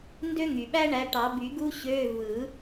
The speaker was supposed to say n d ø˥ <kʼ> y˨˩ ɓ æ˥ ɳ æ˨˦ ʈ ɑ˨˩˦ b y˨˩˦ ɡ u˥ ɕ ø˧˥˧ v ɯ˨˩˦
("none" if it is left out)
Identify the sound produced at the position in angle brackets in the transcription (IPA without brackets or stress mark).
ŋ